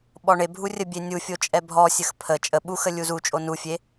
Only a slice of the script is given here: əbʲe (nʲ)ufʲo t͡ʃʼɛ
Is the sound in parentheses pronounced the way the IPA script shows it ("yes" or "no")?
yes